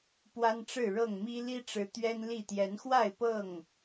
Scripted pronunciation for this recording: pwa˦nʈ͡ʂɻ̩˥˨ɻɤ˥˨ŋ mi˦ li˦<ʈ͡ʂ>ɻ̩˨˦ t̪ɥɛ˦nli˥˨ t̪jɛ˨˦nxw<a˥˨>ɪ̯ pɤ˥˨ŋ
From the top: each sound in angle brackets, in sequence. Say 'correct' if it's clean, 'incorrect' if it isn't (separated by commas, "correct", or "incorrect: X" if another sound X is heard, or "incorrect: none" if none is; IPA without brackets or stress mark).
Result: correct, correct